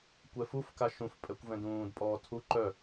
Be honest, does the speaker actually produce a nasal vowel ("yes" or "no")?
yes